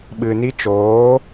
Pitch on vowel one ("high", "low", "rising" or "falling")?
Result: low